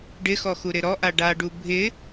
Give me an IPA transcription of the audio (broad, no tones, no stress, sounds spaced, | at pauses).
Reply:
ɖ ɪ x ɔ x u ɾ ɪ ɾ ɔ ʔ a ɖ a ɖ u bʱ ɪ